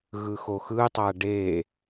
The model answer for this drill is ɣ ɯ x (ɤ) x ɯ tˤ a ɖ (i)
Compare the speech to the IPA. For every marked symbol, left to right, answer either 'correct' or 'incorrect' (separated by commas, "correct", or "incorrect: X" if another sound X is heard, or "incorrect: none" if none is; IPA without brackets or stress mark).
incorrect: o, incorrect: e